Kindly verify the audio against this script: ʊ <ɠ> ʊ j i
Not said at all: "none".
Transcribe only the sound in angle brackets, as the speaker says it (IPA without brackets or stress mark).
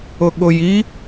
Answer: ɠ